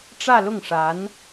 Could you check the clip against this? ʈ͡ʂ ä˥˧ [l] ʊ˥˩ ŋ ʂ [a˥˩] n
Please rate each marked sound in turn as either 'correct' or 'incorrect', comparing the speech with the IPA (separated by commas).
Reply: correct, incorrect